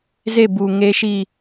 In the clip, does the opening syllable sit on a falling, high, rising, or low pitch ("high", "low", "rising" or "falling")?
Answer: falling